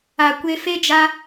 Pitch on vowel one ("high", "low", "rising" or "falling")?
low